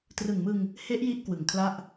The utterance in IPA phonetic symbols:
t r ɯ˨˩ ŋ m ɯ˧ ŋ | h e˦˥ ʔ j i˦˥ ʔ k w ɯ˨˩ ŋ kʰ l a˥˩ ʔ

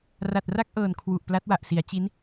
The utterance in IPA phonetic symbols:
r a˨˩ t̚ r a˥˩ k̚ ʔ ɤː˨˩ n kʰ w u˨˩ ʔ p l a˦˥ t̚ w a˨˩ ʔ s i˩˦ a̯ t͡ɕ i˦˥ n

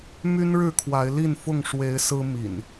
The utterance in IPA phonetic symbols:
m y˦ n ɻ ɻ̩˥˨ kʰ w a˨˦ ɪ̯ l i˥˨ n f ʊ˥˨ ŋ ʂ w e˨˦ ɪ̯ s ɹ̩˦ m ḭ˨˩ n

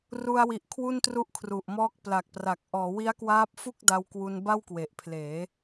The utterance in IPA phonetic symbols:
r u˧ a̯ w i˨˩ ʔ kʰ w u˥˩ n t r u˥˩ ʔ kʰ r u˨˩ ʔ m ɔː˥˩ k̚ p l a˨˩ k̚ p r a˨˩ k̚ ʔ ɔː˩˦ w i˦˥ a̯ k w aː˦˥ p̚ f u˥˩ k̚ d a˧ w k w u˧ n b a˥˩ w k w e˨˩ ʔ pʰ l eː˩˦

